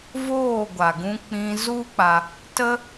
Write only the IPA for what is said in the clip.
voː˦˨ɡʷa˨ɡũ˧ k͡pĩ˧ zu˦k͡pa˧ | tə˦

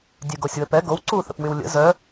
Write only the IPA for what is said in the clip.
dʲøɡosʲwəpɛ ɡow ǀuθə̰p wywlʲə̰ zœ

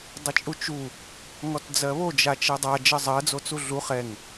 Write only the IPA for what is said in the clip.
dˤɘt͡ʃʼut͡ʃu | ŋɔtd͡zɜβo d͡ʒat͡ʃɜdˤa d͡ʒɜzˤɜ d͡zot͡suɮu χɛŋ

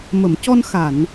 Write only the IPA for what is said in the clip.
mə˨˩˨mcɔ˧n xa˨˩˨n

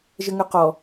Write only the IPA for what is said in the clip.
ʒəŋœqɔ

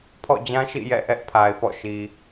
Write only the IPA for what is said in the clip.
pʰɔ̰˦˨d͡ʑã˦ ʃḭ˦˨jɛ̰˦˨ ʔɛ˦ʔpʰa˨ɪ̯pɔ̰˦˨ʃi˨

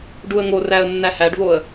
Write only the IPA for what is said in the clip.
ɖuə̯ŋoræə̯ nːæhæɖvoə̯

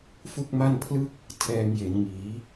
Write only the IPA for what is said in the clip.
fu˥˩k̚ma˥˩n pʰlɯ˥˩k̚ | tʰɛː˧ŋje˩˦nŋiː˩˦

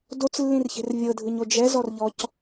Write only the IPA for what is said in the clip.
dot͡slːĩrçe̤r vʲɤdʱɯɲo d͡ʒɛzɔrʎɔc

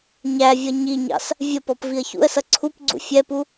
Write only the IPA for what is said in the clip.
ɲævʲʌ ɲiɲɑ̰s | vʲəpɔp viə̯çṵə̯sʌ ǀʰupɡ͡ǀṵ fʲɛpu

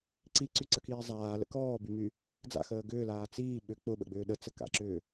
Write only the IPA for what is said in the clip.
ǀiǀyǀəkiː zˤaːlə̰ kɔːbymy | d͡za̰xəː ɡʏːlaː t͡siː ɓʏ k͡pʊɓə̰ɡ͡bʏː ɗət͡səka̰ǁʏː

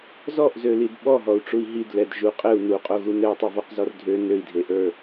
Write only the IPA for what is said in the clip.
zɔʔzølid ɓɔɦɔu̯ʈ͡ʂui̯ ɦidlɛd ʒu qʼɘu̯ nuqʼoɣu nɘu̯tˤøvɔqzɔr dʱø nøi̯dʱeʔə˞

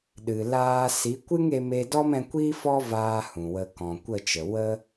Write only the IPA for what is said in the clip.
ɗɨ˨ laː˧ si˨˦kʷɨ˦ŋe˧ me˧ dɔ˦mɛ̃˧kʷi˦fɔ˦ vaː˦hũ˨wə˧ kɔ̃˨kʷə˦˨t͡ʃə˨ wə˦

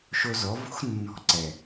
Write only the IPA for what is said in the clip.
ʃo˧zɔ˨˦ vo̤˦x nːɔ̤˧ǀɛ˨

